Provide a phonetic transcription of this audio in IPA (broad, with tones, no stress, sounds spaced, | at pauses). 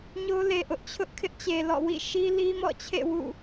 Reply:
ɲ o˦ l e˨ ʔ ʊ˦ ʔ t͡ɕʰ ʊ˦ ʔ kʰ ɪ˦ ʔ t͡ɕ e˨ l ɔ̰˦˨ w ḭ˦˨ ʃ i˦ l i˦ m ɔ̰˦˨ t͡ɕʰ ḛ˦˨ w ṵ˦˨